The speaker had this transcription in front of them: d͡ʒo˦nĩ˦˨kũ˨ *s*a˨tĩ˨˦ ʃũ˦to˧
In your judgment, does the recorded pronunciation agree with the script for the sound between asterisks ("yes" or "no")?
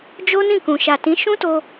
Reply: no